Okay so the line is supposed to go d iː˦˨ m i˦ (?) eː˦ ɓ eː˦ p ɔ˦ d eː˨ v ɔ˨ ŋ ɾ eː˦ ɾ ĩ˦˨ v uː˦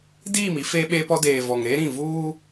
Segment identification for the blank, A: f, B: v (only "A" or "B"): A